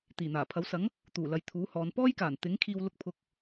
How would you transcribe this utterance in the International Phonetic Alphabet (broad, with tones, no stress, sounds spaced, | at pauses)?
t̪ iː˨˩ n̪ aː˨˩ pʰ ɐ˨˥ w s ɐ˨˥ ŋ | t̪ uː˨˩ l ɐ˨ j t̪ʰ uː˨˥ h ɔː˨˧ n p ɔː˥ j k aː˨˩ n t̪ ɪ˨˥ ŋ kʰ iː˧ w l ʊ˧ k̚ pʰ ʊ˨˥ k̚